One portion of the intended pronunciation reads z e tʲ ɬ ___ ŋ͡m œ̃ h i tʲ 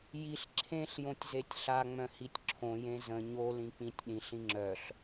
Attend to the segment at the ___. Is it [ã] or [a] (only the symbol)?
a